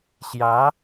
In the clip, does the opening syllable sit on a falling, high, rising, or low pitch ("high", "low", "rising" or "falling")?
rising